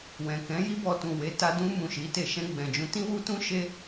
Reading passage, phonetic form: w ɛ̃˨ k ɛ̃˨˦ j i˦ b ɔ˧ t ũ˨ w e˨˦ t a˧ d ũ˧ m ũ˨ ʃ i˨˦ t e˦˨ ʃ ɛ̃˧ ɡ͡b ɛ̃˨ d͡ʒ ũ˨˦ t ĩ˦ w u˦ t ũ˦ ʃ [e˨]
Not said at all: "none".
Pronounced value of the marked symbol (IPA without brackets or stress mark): e˦